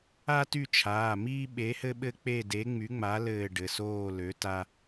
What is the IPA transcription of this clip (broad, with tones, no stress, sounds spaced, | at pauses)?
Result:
a˦ t y˦˨ t͡ʃʰ aː˩˧˩ m iː˦ ɓ e˨˥ h ɘ˦ ɓ ɘ˦ k͡p e˦˨ d e˨˥ ŋ͡m y˨˥ ŋ͡m a˨˥ l ɘː˦˨ ɖ ɘ˩˧˩ s oː˦˨ l ø˨˥ t a˦